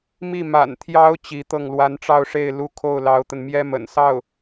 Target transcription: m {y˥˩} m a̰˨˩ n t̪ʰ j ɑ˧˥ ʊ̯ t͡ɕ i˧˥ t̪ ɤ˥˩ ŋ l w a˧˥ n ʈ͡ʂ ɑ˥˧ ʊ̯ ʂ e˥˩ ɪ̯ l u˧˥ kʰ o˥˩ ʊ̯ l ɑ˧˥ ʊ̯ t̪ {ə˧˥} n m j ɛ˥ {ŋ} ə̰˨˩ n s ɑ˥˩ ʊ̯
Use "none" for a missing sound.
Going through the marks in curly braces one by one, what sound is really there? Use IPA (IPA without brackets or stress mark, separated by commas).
i˥˩, ə˧, m